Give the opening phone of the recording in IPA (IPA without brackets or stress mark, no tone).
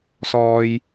s